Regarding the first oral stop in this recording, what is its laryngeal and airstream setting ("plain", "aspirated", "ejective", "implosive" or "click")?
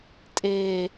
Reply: ejective